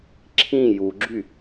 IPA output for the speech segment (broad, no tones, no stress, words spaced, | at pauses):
ǁʰĩ juɡ͡ǁy